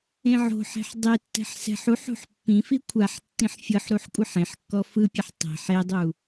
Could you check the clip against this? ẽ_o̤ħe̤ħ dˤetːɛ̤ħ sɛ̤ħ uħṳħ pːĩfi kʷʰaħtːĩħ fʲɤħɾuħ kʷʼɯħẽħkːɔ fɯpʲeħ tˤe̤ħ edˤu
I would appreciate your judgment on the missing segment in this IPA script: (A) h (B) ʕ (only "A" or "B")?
B